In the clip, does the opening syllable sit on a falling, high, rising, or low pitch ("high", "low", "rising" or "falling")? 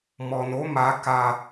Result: low